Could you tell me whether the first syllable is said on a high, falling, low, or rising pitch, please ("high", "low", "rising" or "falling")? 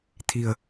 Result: low